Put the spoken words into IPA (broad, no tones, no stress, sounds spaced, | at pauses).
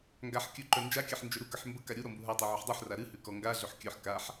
ŋ ɡ a ħ kʲ ɵ ǃ œ n d͡ʒ a kʲ a ħ n d͡ʒ ɵ ɾ u k ə ħ m b ə k a ɾʲ u ɾ ɔ m b u ɦ a tˤ o ʕ ɵ ħ dˤ u ħ r a ɾ ɨ h ʉ k ɔ ŋ ɡ a ɮ ɵ ħ kʲ œ ħ k a ħ